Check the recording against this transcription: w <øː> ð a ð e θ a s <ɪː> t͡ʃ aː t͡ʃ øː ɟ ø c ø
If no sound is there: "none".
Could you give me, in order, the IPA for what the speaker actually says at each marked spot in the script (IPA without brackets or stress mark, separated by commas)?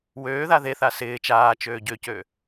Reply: øː, ɪː